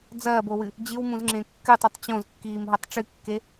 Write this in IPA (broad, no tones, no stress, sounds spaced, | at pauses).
d͡z ɐː b o w ɨ | d͡ʑ ɨ w m ũ z ŋ͡ǁ ẽ kː ɨ tˤ ʉ tˤ t͡ɕ õ z kː iː m ɦ ɐ tˤ ʈ͡ʂ ɨ kː e